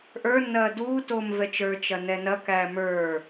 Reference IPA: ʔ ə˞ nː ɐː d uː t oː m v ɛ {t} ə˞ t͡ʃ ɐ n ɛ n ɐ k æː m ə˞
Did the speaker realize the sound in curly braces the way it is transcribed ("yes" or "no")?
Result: no